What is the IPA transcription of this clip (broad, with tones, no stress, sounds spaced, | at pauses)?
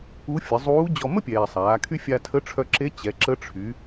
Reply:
u˧˥ fʲ ə˩˧ zˤ uː˧˥ d͡ʑ ɔ˧ m ə˥ pʲ ɛː˩ sˤ aː˩˧ kʰ y˥ fʲ a˧ tʰ ə˧˥ ʈ͡ʂʰ œ˧ ǁ e˧˥ t͡ɕ ɛ˩˧ ǁ ə˧˥ ʈ͡ʂʰ y˩˧